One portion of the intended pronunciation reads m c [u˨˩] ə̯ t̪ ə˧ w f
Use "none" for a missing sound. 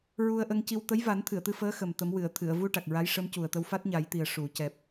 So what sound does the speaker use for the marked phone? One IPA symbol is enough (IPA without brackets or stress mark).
u˨˩